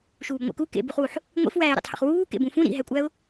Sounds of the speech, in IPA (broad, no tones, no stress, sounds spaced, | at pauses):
ʃ uː b ŋʷ ḛ k u k ḛ b u χ w u ħ | ŋʷ ḭ f w æː ɪ̯ ɾ ḛ tˤ h ḛ χ w uː k ḛ b ũ f ũ ɾ ḭ ɦ æ kʷʼ æ ʊ̯